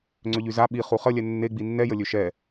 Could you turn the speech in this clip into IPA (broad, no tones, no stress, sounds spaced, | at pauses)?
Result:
ŋ͡ǀ ø ʎ y z a ɓ i χ u χ ə lʲ ɛ nː e ɡ͡b i nː ɛ j ə lʲ ø ʃ ɛ